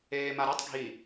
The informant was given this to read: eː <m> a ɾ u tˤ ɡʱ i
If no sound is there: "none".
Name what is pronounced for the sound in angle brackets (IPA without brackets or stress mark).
m